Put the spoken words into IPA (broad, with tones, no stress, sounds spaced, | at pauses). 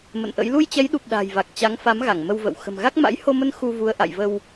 m ə̰˧˨ n ʔ ə̰˧˥ j l u˧ j t͡ɕ ɛ˨˦ j ɗ u˨˩ p̚ ɗ a̤˨˩ j v a˨˩ k̚ t͡ɕ a˨˦ ŋ f a˨˦ m ɣ a˧˩ ŋ m ə˧ w v ə̰˧˨ w x ə̤˨˩ m ɣ a˦˥ k̚ m a̰˧˥ j h o˧ m ə˧ n x u˧ v u˨˦ ə̯ ʔ a̰˧˨ j v ə˧ w